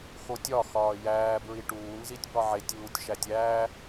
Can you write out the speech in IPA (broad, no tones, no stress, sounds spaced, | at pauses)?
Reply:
x o tʲ ɒ x ɒː j æː b ɹ i ʈ uː n z i tʲ b ɒ ʕ e tʲ uː tʲ ʃ æ tʲ æː